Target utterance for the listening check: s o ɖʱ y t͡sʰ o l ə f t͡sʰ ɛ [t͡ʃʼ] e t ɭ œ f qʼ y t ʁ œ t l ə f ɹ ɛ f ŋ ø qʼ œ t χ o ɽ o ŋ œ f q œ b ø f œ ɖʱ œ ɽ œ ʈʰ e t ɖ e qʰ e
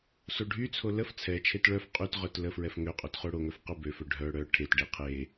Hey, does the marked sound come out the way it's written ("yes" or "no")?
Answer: no